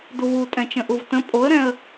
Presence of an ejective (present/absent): present